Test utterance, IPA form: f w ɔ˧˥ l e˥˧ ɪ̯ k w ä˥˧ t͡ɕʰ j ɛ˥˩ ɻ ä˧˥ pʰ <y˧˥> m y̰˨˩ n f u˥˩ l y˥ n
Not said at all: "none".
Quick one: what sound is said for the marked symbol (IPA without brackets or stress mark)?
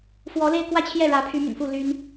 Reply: y˧˥